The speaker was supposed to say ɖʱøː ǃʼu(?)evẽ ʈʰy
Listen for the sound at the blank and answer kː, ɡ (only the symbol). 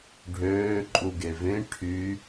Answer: ɡ